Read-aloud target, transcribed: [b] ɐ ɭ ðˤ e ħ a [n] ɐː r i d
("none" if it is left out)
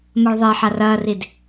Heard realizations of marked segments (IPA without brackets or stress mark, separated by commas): m, r